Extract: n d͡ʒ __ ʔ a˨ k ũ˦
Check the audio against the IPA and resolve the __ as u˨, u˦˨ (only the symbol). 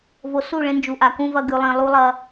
u˨